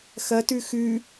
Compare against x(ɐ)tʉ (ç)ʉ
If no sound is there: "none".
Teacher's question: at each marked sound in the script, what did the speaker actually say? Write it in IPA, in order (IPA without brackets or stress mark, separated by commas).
ɐ, x